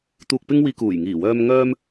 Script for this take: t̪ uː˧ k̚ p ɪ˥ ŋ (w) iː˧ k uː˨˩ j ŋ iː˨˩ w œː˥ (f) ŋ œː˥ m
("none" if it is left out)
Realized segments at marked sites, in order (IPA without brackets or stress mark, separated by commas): w, m